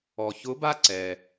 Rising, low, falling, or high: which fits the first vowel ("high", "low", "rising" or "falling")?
low